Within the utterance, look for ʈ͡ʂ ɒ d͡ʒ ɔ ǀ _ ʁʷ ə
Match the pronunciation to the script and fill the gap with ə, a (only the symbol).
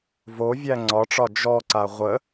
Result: a